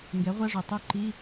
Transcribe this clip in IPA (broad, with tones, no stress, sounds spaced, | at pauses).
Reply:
ŋ ɡ ɛ˩˥ ʁʷ a˧˥˧ ʐ o˩ tˤ u˧˥˧ ǃ i˧˥˧